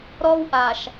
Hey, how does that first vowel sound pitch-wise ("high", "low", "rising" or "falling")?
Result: high